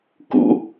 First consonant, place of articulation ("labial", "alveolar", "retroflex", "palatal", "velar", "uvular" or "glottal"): velar